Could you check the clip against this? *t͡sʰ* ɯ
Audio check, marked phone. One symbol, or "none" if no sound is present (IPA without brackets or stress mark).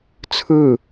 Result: t͡sʰ